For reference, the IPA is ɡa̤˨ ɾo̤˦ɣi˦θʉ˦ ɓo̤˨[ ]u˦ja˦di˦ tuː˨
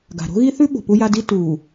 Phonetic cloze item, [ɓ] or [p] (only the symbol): p